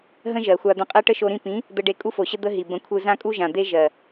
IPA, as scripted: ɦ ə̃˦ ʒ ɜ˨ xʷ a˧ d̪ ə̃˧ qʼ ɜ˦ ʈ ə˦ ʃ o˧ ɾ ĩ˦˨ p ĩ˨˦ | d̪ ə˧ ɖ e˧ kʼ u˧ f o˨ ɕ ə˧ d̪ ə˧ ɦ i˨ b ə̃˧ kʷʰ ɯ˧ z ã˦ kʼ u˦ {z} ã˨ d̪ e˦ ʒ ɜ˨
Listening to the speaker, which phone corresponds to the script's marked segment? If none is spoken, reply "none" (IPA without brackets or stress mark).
ʒ